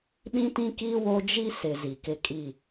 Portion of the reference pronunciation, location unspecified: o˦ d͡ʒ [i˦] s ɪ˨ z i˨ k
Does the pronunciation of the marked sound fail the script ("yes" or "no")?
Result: no